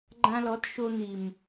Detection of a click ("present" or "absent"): present